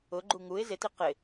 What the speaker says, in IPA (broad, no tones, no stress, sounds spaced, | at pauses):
ʊ ɡ͡ǃ u ŋ u ɪ̯ z ɪ t i q ɪ